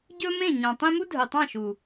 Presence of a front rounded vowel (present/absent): present